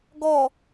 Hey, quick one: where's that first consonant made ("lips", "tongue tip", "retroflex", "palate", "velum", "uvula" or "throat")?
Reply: velum